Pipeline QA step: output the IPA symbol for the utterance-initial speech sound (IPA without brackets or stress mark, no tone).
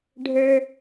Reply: ɖʱ